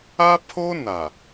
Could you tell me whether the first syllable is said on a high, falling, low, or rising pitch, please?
high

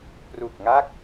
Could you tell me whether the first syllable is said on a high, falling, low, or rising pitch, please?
low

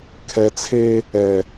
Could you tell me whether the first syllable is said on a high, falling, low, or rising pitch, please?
low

